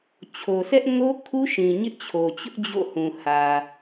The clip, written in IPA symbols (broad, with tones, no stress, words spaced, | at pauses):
t͡ɕʰo˨sɛ˦ʔŋo˦ kʰu˦ʃĩ˨ ɲɪ˦ʔt͡ɕʰo˨t͡ɕʊ˦ʔ d͡ʑo̰˦˨hũ˨ hä˨